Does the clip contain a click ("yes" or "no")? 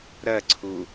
yes